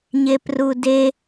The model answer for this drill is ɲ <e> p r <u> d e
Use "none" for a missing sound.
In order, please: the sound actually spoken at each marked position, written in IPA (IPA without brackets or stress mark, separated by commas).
e, u